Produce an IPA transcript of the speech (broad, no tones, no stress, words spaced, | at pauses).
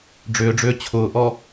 ɖ͡ʐʏːɖ͡ʐʏː t͡ɕʰʊːʔɔ